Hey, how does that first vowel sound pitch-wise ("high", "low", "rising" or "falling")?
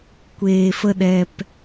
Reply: low